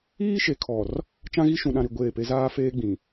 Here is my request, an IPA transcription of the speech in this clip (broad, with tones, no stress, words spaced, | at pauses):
iː˦ʃe˨kʰɔ˨r | t͡ʃã˦ɣi˦ ʃũ˨ɗã˨ɾi˨ ɡʷeː˦˨pe˦ zaː˦feː˦ɡ͡bĩ˨